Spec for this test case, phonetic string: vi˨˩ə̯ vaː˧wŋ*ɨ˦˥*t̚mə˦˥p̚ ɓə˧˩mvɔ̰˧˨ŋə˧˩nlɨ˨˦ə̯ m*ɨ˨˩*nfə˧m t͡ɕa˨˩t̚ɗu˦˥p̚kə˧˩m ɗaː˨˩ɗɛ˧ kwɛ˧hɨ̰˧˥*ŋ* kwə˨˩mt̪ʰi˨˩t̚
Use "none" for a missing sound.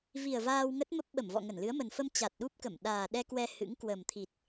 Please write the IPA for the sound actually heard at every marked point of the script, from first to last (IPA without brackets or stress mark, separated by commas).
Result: ə˦˥, ə˨˩, ŋ